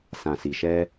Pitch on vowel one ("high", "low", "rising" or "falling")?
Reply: low